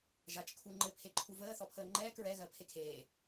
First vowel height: low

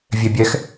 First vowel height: mid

